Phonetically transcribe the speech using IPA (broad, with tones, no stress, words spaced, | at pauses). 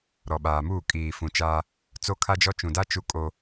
ɾɔ˨ɓaː˨muː˦˨kʼiː˨ fũ˨t͡ʃaː˦ | t͡so˦kʰa˦d͡ʒɔ˦ t͡ʃũ˨da˦ t͡ʃu˦kʼo˦